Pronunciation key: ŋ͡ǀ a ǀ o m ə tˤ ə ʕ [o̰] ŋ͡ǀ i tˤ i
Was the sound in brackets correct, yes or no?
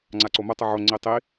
no